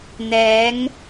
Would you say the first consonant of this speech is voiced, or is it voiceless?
voiced